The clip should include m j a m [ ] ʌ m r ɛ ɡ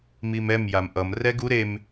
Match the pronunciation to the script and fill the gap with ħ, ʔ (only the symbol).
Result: ʔ